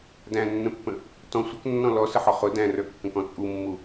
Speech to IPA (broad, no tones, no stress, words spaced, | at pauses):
dæ̃nːə̃pːə̃ | tɔ̃ sʷəknːɔ̃ lɔsəħɔ χʊ dæ̃rə˞kːə̃kɔ̃ t͡sʼumːu